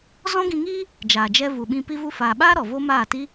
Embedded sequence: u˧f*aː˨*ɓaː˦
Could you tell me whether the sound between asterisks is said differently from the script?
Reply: no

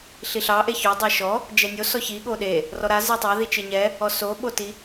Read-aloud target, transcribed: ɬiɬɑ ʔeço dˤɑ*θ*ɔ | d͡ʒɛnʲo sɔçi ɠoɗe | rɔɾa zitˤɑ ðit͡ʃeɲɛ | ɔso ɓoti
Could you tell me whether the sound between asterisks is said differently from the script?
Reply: yes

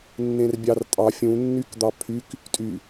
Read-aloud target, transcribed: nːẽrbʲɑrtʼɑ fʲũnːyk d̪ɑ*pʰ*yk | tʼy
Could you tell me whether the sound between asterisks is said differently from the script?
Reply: no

